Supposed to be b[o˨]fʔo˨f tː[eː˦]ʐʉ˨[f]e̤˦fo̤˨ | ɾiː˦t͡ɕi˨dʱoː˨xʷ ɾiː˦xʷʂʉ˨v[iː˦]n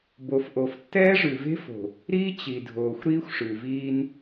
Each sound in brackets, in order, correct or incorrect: correct, incorrect, incorrect, correct

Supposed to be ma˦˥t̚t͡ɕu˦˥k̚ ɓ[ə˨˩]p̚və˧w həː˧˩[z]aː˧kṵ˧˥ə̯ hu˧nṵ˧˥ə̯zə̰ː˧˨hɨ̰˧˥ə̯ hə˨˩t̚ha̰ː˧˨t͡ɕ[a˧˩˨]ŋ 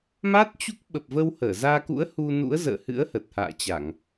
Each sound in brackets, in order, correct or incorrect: correct, correct, correct

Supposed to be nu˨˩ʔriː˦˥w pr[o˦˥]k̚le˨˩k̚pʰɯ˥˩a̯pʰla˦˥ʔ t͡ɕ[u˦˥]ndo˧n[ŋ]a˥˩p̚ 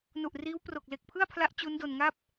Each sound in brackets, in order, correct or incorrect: incorrect, correct, correct

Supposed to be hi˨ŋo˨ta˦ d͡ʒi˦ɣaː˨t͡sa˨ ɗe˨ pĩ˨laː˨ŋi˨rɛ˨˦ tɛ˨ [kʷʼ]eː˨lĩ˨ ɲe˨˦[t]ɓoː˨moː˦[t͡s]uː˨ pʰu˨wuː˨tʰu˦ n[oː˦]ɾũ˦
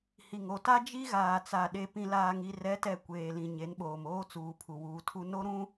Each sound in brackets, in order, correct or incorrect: incorrect, incorrect, correct, incorrect

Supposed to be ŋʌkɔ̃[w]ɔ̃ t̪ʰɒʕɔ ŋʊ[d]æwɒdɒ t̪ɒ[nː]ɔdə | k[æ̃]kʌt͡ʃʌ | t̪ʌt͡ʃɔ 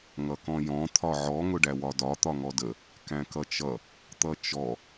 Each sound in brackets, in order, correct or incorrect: incorrect, incorrect, incorrect, correct

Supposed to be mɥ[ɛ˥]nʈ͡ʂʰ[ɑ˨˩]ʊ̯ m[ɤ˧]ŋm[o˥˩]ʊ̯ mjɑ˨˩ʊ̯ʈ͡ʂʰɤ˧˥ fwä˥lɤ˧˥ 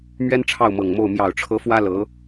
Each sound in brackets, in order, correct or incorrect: correct, incorrect, incorrect, correct

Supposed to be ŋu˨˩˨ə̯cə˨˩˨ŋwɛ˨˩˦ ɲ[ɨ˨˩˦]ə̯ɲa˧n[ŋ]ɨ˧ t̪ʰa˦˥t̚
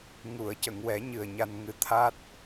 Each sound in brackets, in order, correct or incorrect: incorrect, correct

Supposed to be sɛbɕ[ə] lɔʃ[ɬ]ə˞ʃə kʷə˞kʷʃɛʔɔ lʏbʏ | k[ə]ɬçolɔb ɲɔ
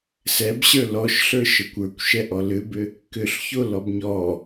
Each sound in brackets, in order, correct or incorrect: incorrect, correct, incorrect

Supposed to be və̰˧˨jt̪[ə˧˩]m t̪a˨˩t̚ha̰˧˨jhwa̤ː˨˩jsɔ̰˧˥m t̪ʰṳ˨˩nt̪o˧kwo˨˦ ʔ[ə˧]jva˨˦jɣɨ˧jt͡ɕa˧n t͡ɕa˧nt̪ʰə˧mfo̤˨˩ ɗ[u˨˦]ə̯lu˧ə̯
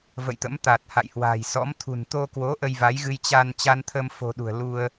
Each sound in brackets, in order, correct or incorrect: incorrect, correct, incorrect

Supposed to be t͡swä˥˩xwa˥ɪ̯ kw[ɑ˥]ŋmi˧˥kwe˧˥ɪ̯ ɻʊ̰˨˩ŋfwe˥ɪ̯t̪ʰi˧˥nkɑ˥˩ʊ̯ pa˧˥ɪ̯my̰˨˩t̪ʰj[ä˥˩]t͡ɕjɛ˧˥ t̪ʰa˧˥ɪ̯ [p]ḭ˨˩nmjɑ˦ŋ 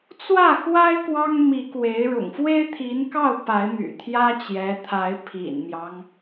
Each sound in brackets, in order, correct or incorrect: correct, incorrect, incorrect

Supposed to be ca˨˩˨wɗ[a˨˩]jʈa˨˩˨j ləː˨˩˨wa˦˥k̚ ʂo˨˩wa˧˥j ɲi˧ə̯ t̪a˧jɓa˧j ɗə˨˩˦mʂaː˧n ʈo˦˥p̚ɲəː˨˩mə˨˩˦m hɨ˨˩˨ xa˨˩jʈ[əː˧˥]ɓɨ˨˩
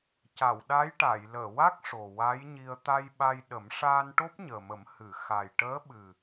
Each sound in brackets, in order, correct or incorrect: incorrect, correct

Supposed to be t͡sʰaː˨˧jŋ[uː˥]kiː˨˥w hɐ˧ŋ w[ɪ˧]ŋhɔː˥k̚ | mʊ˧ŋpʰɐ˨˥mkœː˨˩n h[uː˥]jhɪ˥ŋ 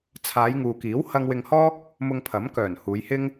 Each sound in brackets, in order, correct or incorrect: incorrect, correct, incorrect

